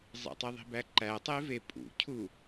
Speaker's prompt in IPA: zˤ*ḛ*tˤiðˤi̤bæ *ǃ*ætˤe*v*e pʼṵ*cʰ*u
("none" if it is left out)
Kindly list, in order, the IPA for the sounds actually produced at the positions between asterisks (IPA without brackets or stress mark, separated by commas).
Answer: ḛ, ǃ, v, cʰ